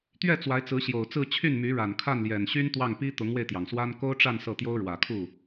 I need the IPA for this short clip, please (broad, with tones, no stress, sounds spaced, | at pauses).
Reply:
t̪ ɥ ɛ˥˩ t͡s w a˧˥ ɪ̯ t͡s ɹ̩˧˥ ɕ j o˨˩ ʊ̯ t͡s ɹ̩˥˧ t͡ɕʰ y˥˩ n m y˧˥ ɻ a˨˩ n kʰ a˥˩ n l j ɛ˨˩ n ɕ y˥ n t̪ w ɑ˥˩ ŋ p i˥ t̪ ʊ˧˥ ŋ w e˧ ɪ̯ t̪ j ɑ˩ ŋ s w a˥ n k o˥ ʊ̯ ʈ͡ʂ a˥˧ n s ɤ˥˩ t̪ j o˥ ʊ̯ ɻ w ä˨˩ kʰ u˥˩